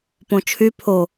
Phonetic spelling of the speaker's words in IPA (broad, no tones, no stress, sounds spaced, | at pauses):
p õ t͡ʃʰ y pʰ o